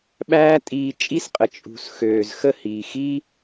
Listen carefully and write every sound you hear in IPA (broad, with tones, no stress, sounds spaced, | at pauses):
ɓ æː˦ tʼ iː˧ t͡ʃʼ i˦ s qʼ ə˨ t͡ʃʼ ṳ˨ s x øː˨ z x ə˦˨ h iː˨ x i˦